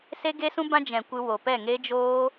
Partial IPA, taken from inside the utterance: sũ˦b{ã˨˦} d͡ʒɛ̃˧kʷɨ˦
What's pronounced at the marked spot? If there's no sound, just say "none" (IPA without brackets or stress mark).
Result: ã˦